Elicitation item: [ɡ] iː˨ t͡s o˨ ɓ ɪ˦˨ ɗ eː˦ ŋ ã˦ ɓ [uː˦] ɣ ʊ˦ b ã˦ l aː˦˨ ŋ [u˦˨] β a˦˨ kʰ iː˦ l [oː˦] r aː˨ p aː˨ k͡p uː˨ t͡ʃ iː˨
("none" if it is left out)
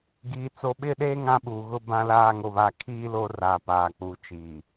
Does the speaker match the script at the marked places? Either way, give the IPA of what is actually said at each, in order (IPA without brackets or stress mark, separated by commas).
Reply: ɡ, uː˨, o˦˨, oː˦